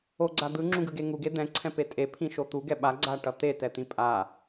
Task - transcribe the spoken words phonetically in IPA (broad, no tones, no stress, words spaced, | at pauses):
oɡ͡ǀa d̪ɯŋ͡ǁũɡɯɡe ŋuɡe d̪ɛ̃ǀʰɛ̃pe tʼepʰĩʃo t̪uɡɛ ɓaɡ͡ǀaʈʌ t̪etɛt̪ĩ pʼa